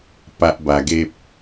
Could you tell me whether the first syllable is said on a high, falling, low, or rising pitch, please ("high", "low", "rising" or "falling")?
high